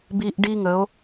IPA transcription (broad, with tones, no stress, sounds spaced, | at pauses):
b i˦ ʔ ɖ i˦ ŋ ə˨˦ o̯